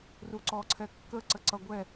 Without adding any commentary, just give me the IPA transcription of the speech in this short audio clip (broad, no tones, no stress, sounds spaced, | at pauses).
r u ǀ ɔ ǀʰ ɛ kː ə ǀ ə ǀ ʌ ɡʷ ɛ